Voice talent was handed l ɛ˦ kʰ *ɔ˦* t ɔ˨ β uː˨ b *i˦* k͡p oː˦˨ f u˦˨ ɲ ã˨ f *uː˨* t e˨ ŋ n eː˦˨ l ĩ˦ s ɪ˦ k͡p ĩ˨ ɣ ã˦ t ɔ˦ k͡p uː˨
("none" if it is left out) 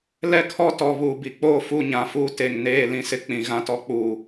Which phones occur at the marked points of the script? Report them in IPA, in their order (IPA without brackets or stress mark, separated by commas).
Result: ɔ˦, i˨, uː˦